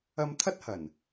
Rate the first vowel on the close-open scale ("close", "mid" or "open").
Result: open